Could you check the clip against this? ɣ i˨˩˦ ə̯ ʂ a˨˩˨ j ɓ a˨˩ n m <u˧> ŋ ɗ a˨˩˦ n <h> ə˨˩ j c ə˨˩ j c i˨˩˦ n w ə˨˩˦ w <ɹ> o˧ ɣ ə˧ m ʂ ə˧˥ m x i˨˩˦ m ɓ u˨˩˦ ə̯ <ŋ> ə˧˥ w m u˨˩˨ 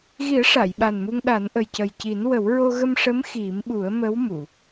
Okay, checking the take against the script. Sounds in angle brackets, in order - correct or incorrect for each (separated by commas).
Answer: correct, incorrect, correct, incorrect